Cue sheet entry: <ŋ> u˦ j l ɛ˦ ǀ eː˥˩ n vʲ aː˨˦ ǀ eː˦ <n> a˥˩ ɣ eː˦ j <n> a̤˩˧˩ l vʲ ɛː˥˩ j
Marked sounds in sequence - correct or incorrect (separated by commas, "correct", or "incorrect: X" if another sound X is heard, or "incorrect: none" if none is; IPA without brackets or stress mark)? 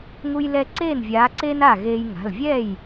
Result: correct, correct, incorrect: ŋ